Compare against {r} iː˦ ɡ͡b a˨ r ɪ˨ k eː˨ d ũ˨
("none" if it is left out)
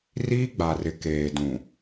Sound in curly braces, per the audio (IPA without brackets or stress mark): r